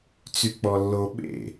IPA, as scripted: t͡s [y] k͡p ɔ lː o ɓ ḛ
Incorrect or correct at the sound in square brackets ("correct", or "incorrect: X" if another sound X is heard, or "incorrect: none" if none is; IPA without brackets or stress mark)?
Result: correct